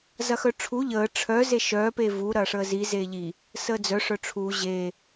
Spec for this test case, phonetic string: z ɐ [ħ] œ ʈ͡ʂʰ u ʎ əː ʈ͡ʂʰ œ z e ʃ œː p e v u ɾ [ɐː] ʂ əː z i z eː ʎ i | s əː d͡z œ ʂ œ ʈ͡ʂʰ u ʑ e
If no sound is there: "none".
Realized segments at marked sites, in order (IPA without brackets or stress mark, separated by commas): x, ɐː